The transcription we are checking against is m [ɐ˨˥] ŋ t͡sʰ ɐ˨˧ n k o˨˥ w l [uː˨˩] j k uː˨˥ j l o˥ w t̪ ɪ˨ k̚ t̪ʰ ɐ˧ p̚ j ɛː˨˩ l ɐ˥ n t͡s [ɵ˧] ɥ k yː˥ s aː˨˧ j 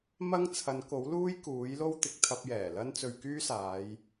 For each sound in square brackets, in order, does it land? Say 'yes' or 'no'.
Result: no, no, yes

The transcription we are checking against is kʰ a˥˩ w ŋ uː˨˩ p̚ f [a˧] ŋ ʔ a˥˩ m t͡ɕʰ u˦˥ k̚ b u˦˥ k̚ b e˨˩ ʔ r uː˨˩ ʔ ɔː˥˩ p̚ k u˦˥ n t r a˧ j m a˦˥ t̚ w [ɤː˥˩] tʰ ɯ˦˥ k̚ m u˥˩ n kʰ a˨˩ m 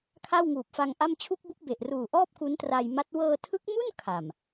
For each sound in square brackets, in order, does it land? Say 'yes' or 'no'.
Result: yes, no

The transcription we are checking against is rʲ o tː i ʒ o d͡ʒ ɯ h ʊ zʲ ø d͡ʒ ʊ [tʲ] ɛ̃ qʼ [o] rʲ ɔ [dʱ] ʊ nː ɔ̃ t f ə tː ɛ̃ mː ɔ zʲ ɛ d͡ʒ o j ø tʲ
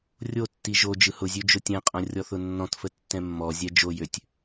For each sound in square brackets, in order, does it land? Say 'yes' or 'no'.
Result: yes, no, no

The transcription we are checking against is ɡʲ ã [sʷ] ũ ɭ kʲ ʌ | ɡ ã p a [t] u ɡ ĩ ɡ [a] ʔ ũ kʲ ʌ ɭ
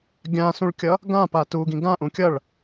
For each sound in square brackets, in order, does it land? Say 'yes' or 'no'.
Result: no, yes, no

